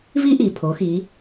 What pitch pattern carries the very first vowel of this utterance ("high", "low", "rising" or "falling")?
high